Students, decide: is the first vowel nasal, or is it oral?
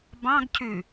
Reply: nasal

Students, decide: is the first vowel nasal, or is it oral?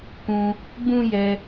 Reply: nasal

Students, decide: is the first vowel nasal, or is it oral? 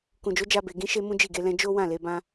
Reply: nasal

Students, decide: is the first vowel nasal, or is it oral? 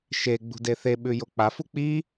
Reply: oral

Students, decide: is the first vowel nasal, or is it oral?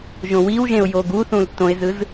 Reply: nasal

